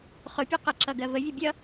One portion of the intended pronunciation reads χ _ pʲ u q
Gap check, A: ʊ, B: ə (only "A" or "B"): A